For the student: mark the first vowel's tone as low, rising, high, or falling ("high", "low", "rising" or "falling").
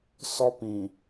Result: high